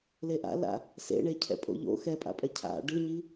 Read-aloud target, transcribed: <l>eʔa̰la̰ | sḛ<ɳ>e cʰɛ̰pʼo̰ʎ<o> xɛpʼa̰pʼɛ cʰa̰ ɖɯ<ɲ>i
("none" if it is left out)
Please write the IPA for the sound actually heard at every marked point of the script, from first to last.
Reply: l, ɳ, o̰, ɲ

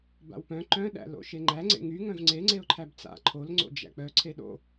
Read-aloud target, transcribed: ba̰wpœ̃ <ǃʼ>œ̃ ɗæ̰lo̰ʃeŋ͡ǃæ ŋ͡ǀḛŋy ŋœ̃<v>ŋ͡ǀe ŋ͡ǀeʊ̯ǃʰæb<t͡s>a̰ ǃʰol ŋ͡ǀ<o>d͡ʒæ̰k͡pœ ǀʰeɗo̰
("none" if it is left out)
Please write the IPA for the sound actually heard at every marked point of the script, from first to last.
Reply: ǃ, v, t͡s, o̰

